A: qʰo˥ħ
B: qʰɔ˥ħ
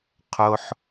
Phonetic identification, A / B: A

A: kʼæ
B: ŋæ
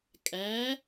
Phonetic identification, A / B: A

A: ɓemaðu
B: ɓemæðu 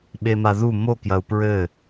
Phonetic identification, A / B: A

